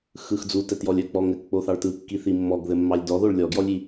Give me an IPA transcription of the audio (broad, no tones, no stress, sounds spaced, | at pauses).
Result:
x ɯ x d͡z u t ɛ t j ɔ lʲ œ k͡p ɔ ŋ ɘ k k͡p o θ ɑ ɭ t ɯ kː i θ i mː ɔ ɡ ð ɘ mː ɑ lʲ d ɔ ð o ɭ lʲ ɔ ɡ j ɔ lʲ i